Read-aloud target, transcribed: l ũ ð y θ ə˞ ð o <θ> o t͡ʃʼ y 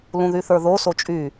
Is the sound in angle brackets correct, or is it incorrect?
incorrect